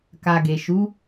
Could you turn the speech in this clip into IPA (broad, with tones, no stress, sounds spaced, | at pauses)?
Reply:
k a˨ ɡ e˨ ʃ u˨˦